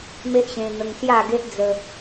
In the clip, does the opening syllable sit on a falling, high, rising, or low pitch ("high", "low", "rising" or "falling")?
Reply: high